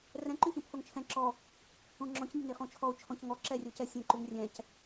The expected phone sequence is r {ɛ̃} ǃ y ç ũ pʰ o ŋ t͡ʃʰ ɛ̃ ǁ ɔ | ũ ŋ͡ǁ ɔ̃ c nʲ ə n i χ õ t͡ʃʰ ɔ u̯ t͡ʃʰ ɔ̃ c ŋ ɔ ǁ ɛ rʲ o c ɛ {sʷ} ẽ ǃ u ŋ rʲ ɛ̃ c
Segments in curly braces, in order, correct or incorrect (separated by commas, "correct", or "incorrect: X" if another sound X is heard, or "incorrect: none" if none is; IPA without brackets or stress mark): correct, incorrect: sʲ